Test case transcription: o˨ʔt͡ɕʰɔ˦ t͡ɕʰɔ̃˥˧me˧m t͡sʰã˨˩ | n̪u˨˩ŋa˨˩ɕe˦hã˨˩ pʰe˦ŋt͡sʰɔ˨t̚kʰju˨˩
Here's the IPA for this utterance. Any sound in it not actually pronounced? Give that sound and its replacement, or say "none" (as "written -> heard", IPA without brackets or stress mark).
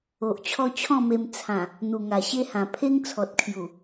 none